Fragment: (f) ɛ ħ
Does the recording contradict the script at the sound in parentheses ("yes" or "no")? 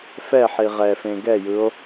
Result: no